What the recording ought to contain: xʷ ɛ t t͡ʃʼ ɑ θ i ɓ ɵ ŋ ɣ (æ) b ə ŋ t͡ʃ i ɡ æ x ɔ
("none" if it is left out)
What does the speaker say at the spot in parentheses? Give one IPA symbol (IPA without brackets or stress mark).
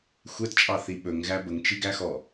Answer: æ